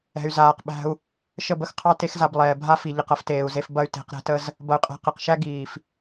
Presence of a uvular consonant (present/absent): present